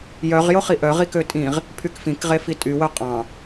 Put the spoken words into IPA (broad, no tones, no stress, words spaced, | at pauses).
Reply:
jœʁ joχiʔœ ʁikøtʼĩʁ | pʰykfĩk ʁefitʼy wœqʼɑ̃